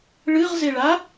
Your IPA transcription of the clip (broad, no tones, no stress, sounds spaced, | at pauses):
ɭ ɨ ʁ z e ɭ a